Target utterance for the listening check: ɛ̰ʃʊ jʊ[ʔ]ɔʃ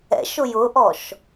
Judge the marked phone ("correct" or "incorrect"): correct